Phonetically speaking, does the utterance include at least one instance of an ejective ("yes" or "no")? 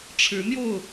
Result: no